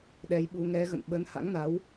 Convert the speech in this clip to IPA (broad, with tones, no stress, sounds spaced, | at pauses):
ɗ ɛ˨˦ j ɓ u˨˦ ŋ ɛ˨˦ ɣ ə̰˧˨ n ɓ ə˨˦ n h a̰˧˥ ŋ n a˨˦ w